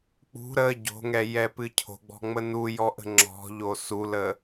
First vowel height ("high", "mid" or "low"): high